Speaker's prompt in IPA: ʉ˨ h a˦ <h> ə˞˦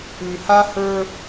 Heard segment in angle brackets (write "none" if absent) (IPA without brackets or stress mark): h